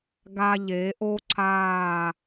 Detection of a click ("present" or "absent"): present